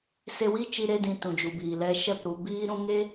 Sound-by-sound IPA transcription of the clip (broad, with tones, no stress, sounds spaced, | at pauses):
s e˧ w i˦ t͡ʃ i˧ ɾ e˧ d ĩ˧ t ũ˨ d͡ʒ u˨ b iː˨ l ɛ˧ ʃ ɛ˦˨ p ɾ u˧ b iː˦ ɾ ũ˧ ŋ e˦